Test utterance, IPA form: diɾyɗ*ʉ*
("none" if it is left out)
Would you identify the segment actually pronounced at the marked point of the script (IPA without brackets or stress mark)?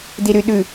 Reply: ʉ